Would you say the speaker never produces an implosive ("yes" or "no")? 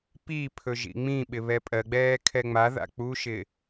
no